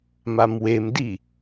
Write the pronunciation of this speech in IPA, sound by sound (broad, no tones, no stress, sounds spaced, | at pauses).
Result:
m a m w e m d i